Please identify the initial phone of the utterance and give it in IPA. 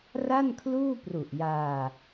r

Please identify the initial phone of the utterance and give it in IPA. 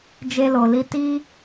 d͡ʒ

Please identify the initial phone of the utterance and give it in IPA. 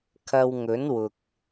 kʰ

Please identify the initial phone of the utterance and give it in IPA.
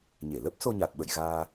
ɲ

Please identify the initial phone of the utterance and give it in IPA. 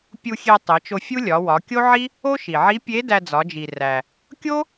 pʲ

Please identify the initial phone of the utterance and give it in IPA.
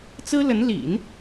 t͡s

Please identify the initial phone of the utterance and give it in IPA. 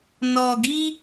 n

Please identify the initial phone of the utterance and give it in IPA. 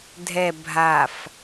dʱ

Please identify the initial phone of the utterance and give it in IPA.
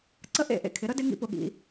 ǀ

